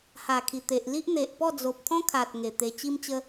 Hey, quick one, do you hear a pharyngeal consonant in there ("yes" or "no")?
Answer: no